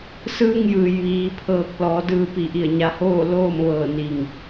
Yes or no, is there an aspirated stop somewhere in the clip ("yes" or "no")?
yes